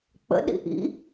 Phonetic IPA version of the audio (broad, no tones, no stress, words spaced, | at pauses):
k͡pə̰ɗḭ ʔḭ